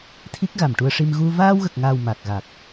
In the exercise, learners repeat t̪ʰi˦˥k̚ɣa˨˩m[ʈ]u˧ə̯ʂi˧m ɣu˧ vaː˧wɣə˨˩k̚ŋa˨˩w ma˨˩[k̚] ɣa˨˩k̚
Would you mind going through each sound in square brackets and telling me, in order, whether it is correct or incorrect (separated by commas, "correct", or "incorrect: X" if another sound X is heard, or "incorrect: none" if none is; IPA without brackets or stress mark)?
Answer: correct, correct